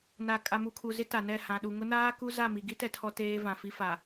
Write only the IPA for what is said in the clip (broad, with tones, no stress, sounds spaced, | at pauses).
n a˨ kʼ a˨ m u˨ kʰ u˨ z ɪ˦ t a˨ n ɛ˦˨ h ã˨ ɗ u˨ ŋ ʊ˦ n aː˦ k u˦ z a˦˨ m i˨ ɡ i˦ t ɛ˨ tʰ ɔ˦ t eː˦ v ã˨ f i˦ f a˨